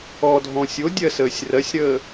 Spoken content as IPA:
ɔdʱɔ̃ sʲodʲɜsəːsʲ rɜsʲɾəː

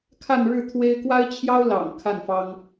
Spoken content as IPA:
kʰa˥˧nɻɻ̩˥˩t̪ʰwe˥ɪ̯ kwa˥ɪ̯t͡ɕʰjɑ˥ʊ̯lɑ̰˨˩ŋ kʰa˥˩nfɑ˥ŋ

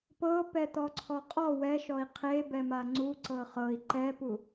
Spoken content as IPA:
pɤpɛ t̪ɔǀʰɔqʼɔ wɛʃɔi̯ qʰebɛ maŋ͡ǀu ǀɤχɤi̯ ǃɛpu

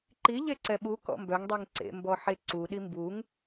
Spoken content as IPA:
ǃi ʎeǀɛɓu kɔ̰mbœŋ dˤiŋǀḛ mbɔħeǀu ɗimbuŋ

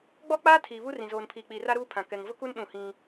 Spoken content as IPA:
ɡ͡bɔ˦k͡paː˦ tʰiː˨βu˦rĩ˨ zoː˨npʰiː˨k͡piː˨ra˦ ɾuː˦ pʰã˨ kɛ˨ŋvʊ˦ku˦n ɗũ˦˨hĩ˦

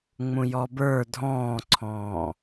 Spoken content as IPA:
ŋ͡mũjɔbə˞ dʱɔ̃ːǀʰɔ̃ː

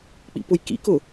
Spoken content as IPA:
k͡pḭpʊjkḭkʊ

